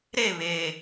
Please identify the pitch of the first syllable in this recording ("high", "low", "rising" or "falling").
falling